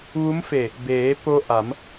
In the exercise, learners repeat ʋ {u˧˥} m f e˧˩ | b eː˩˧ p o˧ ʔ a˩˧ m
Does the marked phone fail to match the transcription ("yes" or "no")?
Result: no